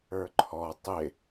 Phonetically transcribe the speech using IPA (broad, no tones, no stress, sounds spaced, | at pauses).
ə˞ ǃʰ ɔ tˤ ɪ